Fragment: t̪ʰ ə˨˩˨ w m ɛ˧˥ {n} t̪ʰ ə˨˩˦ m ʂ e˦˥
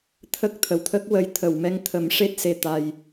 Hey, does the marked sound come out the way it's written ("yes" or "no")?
no